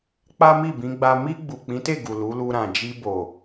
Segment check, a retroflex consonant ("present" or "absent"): absent